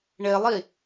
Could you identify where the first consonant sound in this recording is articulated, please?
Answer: retroflex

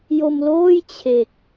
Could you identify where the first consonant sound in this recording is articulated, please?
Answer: palatal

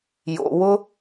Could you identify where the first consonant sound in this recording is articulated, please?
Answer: palatal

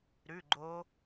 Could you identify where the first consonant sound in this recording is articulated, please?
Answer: alveolar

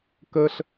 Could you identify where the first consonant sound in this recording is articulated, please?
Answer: velar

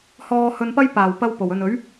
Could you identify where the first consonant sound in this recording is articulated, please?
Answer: glottal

